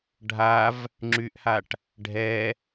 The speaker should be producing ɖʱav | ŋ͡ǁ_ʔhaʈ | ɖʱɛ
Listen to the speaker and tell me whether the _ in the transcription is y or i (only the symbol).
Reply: y